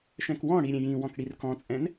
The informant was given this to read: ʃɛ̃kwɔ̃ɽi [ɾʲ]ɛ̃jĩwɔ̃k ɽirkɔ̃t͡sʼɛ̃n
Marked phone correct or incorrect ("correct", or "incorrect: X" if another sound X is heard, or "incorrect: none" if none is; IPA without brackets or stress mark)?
correct